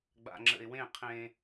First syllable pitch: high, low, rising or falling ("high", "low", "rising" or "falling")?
low